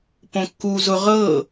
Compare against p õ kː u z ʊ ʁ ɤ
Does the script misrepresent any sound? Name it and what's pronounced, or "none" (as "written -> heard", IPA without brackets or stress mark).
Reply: none